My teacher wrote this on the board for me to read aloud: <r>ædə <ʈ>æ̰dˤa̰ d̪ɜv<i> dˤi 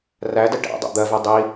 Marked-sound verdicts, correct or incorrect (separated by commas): correct, correct, incorrect